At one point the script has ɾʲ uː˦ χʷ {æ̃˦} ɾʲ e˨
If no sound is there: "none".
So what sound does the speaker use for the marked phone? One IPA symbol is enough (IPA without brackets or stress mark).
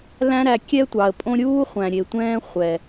æ̃˨